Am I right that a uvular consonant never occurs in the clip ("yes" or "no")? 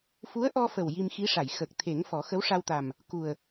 yes